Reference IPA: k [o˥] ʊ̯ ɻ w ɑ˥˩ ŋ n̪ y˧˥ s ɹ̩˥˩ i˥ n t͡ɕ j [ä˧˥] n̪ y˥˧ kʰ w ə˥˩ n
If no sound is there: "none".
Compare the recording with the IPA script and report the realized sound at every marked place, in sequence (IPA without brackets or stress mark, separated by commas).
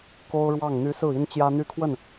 o˥, ä˥